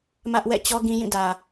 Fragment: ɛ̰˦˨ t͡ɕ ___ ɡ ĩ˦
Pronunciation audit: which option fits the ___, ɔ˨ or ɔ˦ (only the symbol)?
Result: ɔ˦